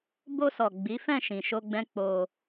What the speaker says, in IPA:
b o˧ s ɔ˨ ɡ͡b i˨˦ f ɛ̃˦˨ ʃ ĩ˨ ʃ o˧ ɡ͡b ɛ̃˦ k͡p o˧

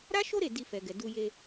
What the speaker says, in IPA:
ɾ a˦ ʃ o˦ ɾ e˦˨ d i˧ f ɛ˨ ɡ ɛ˨ d u˧ j e˧

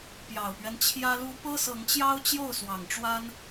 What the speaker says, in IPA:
p j ɑ˨˩ ʊ̯ p ɥ ɛ˦ n t͡ɕʰ j ä˦ l u˦ p ɤ˦ s ɤ˨˦ ŋ t͡ɕ j ɑ˦ ʊ̯ t͡ɕ j o˥˨ ʊ̯ s w ɑ˨˩ ŋ ʈ͡ʂ w a˦ n

